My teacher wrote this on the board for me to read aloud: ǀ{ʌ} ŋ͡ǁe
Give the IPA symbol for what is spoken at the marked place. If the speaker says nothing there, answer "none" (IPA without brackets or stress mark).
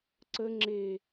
ə